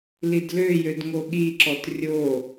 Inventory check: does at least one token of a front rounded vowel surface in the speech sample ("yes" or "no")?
yes